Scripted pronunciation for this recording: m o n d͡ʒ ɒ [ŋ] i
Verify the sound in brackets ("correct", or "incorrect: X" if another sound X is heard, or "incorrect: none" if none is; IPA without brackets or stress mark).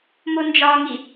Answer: correct